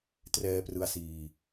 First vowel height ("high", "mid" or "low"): mid